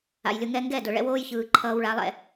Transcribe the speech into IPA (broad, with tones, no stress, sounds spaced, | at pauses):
a̰˨ j lʲ ʊ˧ ŋ ɛ˧ ŋ ɡ ɛ˦˨ d ʊ˨ ɭ ɛ̰˦ w oː˦ j ç ɯː˨ ǃʰ ʌː˧ w ɭ a˨˦ lˠ ɛ̰˧